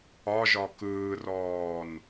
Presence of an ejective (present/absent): absent